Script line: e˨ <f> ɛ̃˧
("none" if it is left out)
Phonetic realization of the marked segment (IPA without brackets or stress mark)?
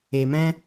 m